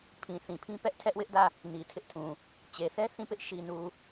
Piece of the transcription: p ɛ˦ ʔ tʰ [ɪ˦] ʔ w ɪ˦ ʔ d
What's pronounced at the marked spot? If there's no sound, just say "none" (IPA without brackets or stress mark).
ɛ˦